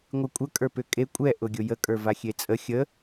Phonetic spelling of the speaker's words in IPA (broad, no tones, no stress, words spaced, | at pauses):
ŋʷɨkʷʼə kʼə˞pʏkʼe kʷʼɛ ʔʊɡʲʊjə kʼə˞vaxʲet͡sʼə xʲə